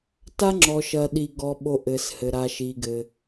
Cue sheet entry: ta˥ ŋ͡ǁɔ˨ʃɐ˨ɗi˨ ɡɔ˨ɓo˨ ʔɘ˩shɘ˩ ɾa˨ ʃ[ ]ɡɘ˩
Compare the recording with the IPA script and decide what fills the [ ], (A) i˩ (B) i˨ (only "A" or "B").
A